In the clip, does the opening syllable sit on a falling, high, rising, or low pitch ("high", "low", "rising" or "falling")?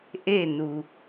falling